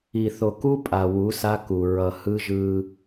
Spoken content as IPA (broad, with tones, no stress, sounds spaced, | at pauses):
i˨ θ o˨ k u˦ pʼ a˨ w u˨˦ s a˦ k u˨ ɹ ʌ˨ h ɯ˦ ʒ ɯ˦